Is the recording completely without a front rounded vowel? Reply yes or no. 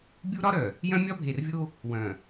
no